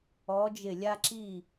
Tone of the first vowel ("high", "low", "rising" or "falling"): rising